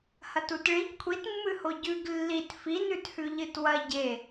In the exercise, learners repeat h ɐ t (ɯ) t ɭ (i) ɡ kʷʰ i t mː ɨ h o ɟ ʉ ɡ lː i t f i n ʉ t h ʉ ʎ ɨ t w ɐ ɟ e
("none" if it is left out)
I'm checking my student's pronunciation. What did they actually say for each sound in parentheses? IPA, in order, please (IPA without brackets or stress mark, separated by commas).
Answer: u, i